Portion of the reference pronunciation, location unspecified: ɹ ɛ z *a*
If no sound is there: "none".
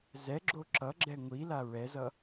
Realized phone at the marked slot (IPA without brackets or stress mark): ʌ